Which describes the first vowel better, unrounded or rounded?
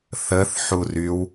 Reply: unrounded